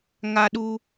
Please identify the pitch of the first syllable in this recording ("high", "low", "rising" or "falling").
high